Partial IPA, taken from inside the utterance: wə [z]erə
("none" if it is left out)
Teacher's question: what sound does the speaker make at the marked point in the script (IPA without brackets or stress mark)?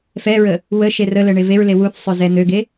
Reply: ʃ